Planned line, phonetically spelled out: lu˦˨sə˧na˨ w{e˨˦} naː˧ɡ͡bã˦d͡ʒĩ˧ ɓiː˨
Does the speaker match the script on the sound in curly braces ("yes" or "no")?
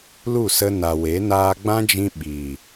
yes